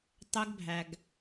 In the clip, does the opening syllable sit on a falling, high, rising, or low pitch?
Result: high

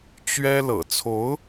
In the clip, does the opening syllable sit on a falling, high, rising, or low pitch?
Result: high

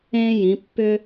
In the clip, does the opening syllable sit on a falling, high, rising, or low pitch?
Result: high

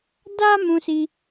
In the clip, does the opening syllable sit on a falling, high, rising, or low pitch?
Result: high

